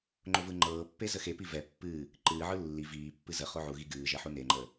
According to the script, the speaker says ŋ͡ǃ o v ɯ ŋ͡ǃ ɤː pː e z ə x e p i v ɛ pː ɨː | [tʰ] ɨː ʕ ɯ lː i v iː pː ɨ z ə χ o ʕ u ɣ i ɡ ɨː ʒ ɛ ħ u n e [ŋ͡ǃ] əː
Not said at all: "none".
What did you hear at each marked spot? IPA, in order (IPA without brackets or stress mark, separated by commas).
ǃ, ŋ͡ǃ